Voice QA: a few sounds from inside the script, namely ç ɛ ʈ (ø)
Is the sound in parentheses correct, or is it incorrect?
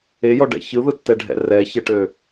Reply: correct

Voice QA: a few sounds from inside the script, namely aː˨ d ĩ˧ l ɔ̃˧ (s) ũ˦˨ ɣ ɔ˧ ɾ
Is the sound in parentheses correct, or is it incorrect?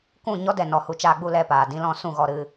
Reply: correct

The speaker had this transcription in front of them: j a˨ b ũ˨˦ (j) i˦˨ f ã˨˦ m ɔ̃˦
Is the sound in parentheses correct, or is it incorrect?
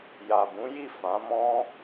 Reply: correct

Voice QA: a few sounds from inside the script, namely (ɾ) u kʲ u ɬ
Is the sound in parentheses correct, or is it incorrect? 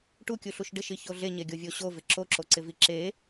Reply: incorrect: ʈ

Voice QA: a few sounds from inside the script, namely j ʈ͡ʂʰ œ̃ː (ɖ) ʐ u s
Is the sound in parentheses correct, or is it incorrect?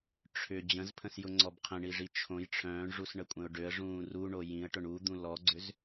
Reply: incorrect: ɳ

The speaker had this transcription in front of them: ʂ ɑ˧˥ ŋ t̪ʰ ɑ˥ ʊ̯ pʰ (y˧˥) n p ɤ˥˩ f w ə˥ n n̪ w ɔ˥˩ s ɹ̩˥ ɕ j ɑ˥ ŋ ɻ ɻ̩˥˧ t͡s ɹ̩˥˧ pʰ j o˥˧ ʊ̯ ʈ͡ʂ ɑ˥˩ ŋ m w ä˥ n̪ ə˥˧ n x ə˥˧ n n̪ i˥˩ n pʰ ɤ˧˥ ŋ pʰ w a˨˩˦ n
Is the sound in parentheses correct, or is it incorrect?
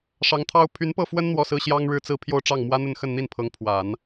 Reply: correct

